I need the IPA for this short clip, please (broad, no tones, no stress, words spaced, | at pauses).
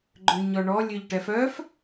ɡ͡ǃøɲɔɳɔ lʲøʎʈɛfœf